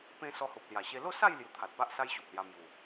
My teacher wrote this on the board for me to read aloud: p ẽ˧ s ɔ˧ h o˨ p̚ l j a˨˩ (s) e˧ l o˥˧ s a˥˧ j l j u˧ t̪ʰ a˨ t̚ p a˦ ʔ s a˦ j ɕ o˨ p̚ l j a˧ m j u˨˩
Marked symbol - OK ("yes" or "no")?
no